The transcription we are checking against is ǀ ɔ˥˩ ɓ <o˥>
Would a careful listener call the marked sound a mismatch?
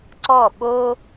no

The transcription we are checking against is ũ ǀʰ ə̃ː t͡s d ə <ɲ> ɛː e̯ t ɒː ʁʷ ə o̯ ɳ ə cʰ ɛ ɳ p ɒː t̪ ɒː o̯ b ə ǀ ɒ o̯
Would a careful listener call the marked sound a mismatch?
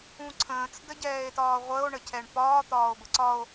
yes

